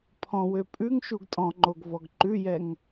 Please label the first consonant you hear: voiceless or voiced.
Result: voiceless